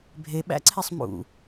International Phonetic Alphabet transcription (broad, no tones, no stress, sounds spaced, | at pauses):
bʱ e ɓ æ̰ ǀʰ e sˤ m ṵ